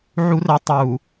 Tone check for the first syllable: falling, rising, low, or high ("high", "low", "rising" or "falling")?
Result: high